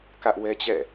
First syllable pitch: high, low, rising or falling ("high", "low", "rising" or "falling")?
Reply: high